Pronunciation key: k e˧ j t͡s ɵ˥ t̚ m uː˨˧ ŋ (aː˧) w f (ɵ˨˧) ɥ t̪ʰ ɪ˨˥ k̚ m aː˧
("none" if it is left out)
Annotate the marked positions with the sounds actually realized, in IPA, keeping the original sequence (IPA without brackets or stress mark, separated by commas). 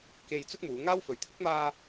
aː˥, ɵ˨˧